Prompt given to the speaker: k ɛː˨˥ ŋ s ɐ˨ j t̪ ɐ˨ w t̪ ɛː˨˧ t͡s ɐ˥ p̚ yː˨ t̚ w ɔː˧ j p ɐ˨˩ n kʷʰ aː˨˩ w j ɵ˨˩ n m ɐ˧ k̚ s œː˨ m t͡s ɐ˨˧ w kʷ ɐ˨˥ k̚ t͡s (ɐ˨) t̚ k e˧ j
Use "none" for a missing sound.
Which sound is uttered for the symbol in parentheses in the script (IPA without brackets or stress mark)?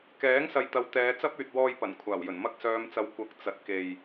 ɐ˨